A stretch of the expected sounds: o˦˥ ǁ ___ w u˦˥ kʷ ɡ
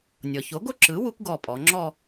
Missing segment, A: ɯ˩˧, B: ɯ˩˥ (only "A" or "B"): B